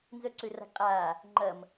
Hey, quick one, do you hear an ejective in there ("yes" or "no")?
yes